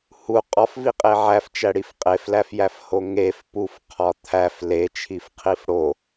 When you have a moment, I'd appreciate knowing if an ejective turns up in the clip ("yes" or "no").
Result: yes